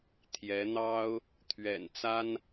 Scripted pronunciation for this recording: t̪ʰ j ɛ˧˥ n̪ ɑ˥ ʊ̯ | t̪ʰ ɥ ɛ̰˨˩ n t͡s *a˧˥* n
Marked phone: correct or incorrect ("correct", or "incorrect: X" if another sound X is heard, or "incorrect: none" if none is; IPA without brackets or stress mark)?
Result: incorrect: a˥